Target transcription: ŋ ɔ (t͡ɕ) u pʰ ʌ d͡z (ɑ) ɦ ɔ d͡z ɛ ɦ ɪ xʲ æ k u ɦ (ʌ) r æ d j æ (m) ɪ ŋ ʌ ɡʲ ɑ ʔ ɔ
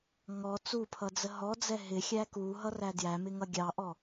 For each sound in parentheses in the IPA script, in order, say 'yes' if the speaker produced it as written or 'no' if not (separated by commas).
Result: no, no, yes, yes